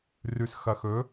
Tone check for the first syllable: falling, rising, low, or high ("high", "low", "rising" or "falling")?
low